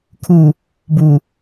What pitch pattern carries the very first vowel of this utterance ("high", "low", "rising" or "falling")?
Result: low